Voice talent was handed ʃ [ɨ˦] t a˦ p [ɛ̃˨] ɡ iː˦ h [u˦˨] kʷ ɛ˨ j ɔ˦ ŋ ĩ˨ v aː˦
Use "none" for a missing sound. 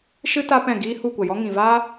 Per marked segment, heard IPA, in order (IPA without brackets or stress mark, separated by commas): ɨ˦, ɛ̃˦˨, u˦˨